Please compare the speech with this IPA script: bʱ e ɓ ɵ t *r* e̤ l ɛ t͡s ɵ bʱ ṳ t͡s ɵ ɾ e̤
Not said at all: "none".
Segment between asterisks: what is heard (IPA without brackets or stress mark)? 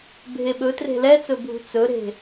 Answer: r